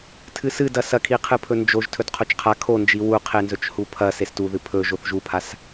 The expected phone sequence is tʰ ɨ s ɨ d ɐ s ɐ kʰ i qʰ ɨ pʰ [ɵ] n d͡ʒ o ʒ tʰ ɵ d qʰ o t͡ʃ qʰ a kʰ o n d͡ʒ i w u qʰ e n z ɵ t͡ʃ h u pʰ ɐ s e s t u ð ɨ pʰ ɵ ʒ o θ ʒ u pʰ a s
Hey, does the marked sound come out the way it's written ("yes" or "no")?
yes